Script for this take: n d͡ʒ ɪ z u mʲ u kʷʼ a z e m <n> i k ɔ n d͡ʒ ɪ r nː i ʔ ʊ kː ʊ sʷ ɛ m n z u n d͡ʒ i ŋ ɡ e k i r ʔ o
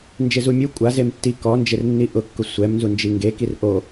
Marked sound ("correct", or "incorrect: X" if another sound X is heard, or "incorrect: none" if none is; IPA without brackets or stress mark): incorrect: tː